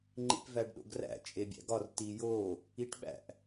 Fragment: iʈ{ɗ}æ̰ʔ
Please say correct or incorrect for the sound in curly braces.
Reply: incorrect